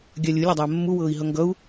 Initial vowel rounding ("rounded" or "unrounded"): unrounded